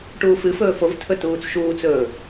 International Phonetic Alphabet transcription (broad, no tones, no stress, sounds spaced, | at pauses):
ʈ uː f ɨ f ɵː f o v tʰ ɵ t uː t͡s ʃ uː t͡s ɵː